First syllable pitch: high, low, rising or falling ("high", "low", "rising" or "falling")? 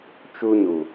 high